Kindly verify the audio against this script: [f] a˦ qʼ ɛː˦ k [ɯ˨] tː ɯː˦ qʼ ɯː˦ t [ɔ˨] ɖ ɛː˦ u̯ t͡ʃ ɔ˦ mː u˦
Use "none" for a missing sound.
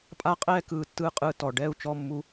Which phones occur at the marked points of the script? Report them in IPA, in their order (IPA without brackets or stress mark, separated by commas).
pʼ, ɯː˨, ɔ˨